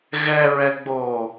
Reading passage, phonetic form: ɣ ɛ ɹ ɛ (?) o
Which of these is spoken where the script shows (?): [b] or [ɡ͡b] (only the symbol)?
ɡ͡b